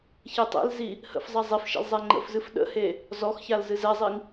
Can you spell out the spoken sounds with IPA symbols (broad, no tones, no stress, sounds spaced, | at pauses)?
ç e tˤ ḛ l z i | h ə̰ f zˤ a zˤ e f ʃ ḛ l zˤ ɛ ŋ͡ǃ ə̰ f z ɨ f ɗ ə̰ h e | z ɔ x ç a l z ɨ z ɛ zˤ i ŋ